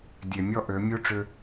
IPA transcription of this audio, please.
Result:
dʲ e˨ mʲ ɔ˦ ʔ ø˨˦ mʲ u˦ ʈ͡ʂ ʏ˦

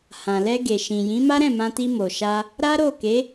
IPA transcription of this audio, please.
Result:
h ã˨ l ɛ˧ ɡ e˨ ʃ ĩ˨ j ĩ˨˦ m a˦ ɾ ɛ̃˦˨ m ã˧ t i˧ m o˨ ʃ a˧ | ɾ a˦ ɾ o˦˨ k e˨˦

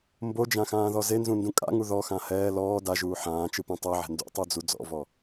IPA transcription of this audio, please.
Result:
m b o d͡ʒ ã x ãː ð ɔ z e n z ũ n d ũ kʼ a̰ ŋ u ð ɔ x ã h ɛː l ɔː d a ʒ uː ħ ãː t͡ʃ ɯ p ũ tˤ ɤ ʕ ɛ̤ n d ṵ tˤ o d͡z u d͡z ɔ̰ v ɔ

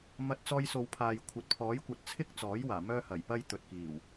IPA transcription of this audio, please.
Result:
m ɐ˧ t̚ t͡s ɔː˧ j s o˨˧ w pʰ aː˨ j kʷʰ ɐ˨ t̚ pʰ ɔː˨˥ j kʷ ɐ˨˥ t̚ t͡sʰ ɪ˥ k̚ t͡s ɔː˨˥ j w aː˨˩ m œː˥ h ɐ˨˩ j p ɐ˥ j t̪ ɵ˨ t̚ k iː˨˩ w

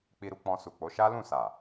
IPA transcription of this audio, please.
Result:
k͡p i˧ ɾ u˧ k͡p ɔ̃˧ s u˨ k͡p o˨˦ ʃ a˦ l ũ˦˨ s a˨

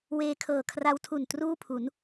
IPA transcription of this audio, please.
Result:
w eː˧ kʰ ɤː˨˩ kʰ r a˦˥ w tʰ u˨˩ n t r uː˥˩ pʰ u˩˦ n

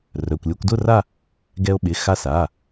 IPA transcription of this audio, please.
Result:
r œ˩˧˩ kʷ lʲ o˧ kʷ d ʊ˥˧ r a˥˧ | ɡ ɛ˧ o̯ ɓ ɪ˩˧˩ x a˧ s a˩˧˩

